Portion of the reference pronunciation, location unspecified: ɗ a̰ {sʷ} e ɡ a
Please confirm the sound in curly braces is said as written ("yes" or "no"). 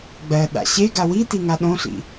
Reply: no